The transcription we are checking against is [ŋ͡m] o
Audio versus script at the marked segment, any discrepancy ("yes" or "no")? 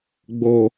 yes